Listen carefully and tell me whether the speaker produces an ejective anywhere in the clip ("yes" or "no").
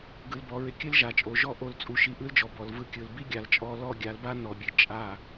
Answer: yes